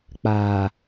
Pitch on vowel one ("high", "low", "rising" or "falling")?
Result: low